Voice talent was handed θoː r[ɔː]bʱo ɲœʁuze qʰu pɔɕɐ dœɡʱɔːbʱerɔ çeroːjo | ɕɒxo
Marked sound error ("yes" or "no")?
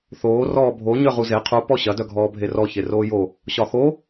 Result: no